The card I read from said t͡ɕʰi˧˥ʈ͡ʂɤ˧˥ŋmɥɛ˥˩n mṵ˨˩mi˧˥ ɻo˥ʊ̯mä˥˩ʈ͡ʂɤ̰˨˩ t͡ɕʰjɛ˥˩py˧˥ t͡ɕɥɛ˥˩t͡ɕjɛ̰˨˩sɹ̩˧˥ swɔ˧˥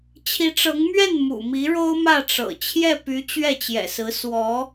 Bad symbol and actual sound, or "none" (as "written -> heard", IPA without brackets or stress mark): none